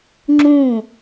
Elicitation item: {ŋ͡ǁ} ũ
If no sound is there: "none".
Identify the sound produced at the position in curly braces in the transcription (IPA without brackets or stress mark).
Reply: ŋ͡ǁ